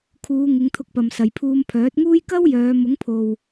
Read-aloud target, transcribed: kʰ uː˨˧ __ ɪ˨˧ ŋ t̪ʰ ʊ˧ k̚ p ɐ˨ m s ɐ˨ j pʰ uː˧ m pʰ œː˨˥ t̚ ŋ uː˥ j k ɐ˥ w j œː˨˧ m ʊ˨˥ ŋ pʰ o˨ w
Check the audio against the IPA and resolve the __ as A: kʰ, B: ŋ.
B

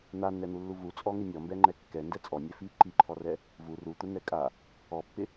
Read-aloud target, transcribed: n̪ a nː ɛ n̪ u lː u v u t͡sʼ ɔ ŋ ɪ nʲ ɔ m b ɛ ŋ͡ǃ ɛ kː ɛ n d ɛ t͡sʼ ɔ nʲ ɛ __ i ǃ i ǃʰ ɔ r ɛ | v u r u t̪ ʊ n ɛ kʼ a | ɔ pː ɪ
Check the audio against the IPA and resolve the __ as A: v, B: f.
B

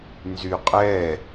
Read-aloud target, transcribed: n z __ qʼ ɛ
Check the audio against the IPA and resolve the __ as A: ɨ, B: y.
B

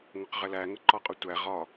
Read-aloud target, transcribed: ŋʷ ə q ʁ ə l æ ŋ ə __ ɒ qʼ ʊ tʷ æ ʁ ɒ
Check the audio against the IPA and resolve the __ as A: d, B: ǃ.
B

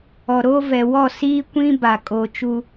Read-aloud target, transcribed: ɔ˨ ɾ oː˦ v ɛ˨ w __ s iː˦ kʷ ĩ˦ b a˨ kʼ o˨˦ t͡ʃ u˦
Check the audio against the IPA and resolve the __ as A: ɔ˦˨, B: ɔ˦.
A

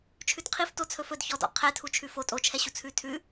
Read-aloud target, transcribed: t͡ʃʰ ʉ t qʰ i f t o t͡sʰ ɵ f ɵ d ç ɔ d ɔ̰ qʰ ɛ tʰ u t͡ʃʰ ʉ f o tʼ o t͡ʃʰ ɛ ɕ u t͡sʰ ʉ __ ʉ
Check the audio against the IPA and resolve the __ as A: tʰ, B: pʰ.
A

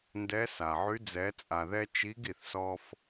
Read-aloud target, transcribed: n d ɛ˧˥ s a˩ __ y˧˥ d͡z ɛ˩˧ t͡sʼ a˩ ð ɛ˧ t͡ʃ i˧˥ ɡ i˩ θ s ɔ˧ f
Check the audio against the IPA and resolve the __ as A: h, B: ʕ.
B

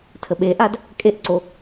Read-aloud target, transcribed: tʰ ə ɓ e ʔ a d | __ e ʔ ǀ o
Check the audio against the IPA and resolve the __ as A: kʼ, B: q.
A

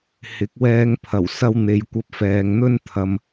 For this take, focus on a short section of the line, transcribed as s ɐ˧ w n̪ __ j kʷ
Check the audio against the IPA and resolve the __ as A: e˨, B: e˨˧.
B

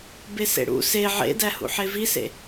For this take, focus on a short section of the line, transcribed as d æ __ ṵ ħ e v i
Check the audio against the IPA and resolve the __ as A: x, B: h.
B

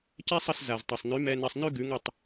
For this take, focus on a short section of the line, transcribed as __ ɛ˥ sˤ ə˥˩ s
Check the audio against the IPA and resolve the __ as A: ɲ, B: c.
B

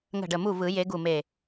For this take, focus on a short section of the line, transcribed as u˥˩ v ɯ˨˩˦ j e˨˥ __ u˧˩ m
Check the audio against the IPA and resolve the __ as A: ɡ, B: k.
A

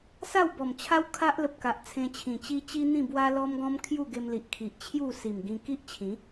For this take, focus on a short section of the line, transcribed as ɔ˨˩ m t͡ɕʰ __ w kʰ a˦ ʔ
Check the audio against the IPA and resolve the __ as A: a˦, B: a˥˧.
A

